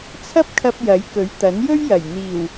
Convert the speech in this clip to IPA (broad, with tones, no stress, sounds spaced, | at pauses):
t͡sʰ ɐ˥ p̚ kʰ ɐ˧ p̚ j ɐ˨˥ j k ɵ˨˥ ɥ t̪ ɐ˨˥ n j ɵ˥ ɥ j ɐ˨˩ j n̪ iː˨˩ w